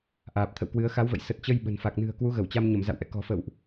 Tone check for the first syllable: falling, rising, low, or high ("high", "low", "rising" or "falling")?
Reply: low